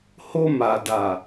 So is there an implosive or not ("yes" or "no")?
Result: no